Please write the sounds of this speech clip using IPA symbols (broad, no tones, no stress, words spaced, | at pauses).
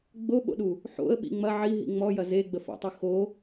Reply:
ɡ͡boɓo̰ɗu | ħo̰ə̯ɓḭ ŋ͡mɐ ʕiɦḭ ŋ͡mɔjɐ zeɡ͡bəfɔ̰tˤɨ xo